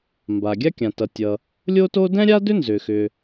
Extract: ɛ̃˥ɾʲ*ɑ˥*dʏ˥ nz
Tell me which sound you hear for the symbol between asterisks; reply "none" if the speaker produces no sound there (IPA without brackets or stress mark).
a˥